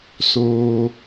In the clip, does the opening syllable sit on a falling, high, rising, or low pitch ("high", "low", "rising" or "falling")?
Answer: high